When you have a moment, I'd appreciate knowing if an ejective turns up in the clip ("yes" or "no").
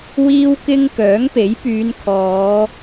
no